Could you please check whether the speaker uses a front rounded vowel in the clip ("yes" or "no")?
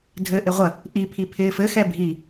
no